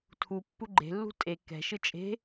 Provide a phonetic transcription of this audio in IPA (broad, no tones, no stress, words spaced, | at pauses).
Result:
tʰupːu ɡ͡ǃe̤lːṳ tʼe kɛ̤ʃɯ t͡ʃʼe̤